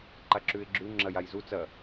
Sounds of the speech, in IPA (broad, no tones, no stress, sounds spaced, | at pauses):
ǃ a ǁ ʉ ɪ̯ ɡ͡ǁ ʉ ŋ͡ǁ ɐ j a j z u t͡s ɐ